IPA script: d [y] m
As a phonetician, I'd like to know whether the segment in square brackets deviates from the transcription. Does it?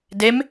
yes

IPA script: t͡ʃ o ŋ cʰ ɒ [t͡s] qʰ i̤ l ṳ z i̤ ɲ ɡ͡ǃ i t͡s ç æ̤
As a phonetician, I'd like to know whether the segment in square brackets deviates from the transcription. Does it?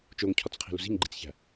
no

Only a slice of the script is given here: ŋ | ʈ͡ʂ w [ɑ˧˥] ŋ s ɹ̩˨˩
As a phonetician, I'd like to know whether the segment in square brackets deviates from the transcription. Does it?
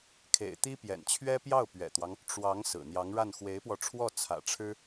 no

